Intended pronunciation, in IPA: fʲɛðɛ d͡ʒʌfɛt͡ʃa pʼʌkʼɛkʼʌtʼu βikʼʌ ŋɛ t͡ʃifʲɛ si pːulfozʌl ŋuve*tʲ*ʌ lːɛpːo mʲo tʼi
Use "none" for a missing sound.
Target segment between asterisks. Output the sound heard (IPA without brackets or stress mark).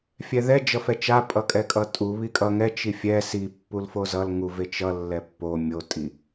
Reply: t͡ʃ